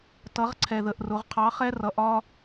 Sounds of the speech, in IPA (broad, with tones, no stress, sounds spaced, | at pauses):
t ʌ˩˥ ʁ ǀʰ ɛ˨˩ ð ə˨˩ ʔ r ʊ˩˥ ʁ qʰ ɑ˩˥ χ ɛ˦ r ʌ˩˥ ʔ ɒ˦